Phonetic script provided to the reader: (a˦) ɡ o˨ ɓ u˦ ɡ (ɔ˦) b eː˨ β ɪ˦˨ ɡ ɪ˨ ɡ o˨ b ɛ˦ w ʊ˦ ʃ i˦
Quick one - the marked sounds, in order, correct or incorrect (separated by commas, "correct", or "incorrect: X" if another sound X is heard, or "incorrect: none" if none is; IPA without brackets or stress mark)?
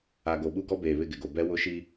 incorrect: a˨, correct